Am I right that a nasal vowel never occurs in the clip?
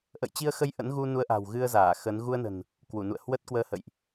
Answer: yes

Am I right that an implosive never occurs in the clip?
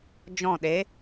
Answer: no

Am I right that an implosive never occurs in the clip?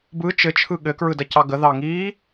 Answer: no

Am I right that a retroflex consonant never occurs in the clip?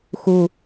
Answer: yes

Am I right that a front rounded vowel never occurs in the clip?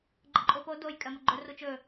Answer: yes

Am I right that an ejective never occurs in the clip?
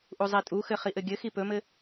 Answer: no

